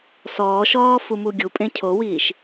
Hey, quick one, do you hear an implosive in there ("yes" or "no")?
no